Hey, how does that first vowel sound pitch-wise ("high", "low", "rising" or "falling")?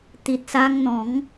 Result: low